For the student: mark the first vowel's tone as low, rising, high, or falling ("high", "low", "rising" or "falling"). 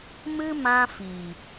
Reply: high